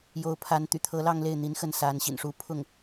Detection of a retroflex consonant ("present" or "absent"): present